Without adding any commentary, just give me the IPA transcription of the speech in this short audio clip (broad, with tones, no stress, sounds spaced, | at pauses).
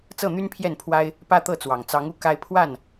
t͡s ɤ˥˨ n̪ y˦ n pʰ j ɛ˥˨ n pʰ w a˦ ɪ̯ | p ä˦ t̪ ɤ˥˨ t͡s w ɑ˨˩ ŋ t͡s ɑ˨˦ ŋ u˨˦ k a˦ ɪ̯ pʰ w a˥˨ n